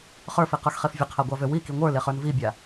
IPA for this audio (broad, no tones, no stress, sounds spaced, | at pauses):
χ ə˞ f i q ə˞ x χ e f vʲ ə qʰ a ɡʷ a v ø w i k i ŋʷ ə˞ l e χ ə˞ n v i bʲ a